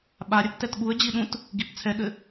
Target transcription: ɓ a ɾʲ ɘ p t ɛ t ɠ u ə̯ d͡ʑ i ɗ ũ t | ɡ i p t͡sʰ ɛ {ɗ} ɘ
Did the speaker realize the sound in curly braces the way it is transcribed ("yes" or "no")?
no